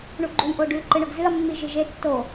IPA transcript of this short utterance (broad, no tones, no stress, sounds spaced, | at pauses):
ɳ u ɡ͡ǃ u j ʔ o ɖ ʉ ǃ ɨ ɳ ɵ ɡ z ɨ ɐ̯ mː i ʒ ɨ ʒ e tː o